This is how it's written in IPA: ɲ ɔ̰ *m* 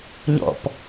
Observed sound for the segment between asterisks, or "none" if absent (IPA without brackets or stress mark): p